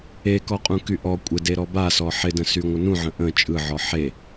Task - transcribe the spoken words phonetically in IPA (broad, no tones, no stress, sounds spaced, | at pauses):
e k ɔ qʼ ũ k y ʔ ɔ kʷʼ ɪ d e ɾ ɔ b a s ɔ ħ ɪ d ə̃ s y ŋʷ ə n ũ ʕ ə̃ ʔ ə̃ t͡ʃʼ ɯ ʕ ɔ ħ e